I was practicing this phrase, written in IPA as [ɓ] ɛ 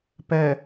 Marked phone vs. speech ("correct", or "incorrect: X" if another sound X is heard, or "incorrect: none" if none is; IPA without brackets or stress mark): incorrect: p